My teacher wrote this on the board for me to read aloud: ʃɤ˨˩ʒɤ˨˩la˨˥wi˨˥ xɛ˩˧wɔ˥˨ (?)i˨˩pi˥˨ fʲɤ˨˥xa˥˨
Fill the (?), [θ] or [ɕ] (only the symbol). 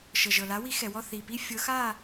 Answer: θ